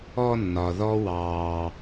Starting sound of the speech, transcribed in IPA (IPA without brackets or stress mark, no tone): ɔ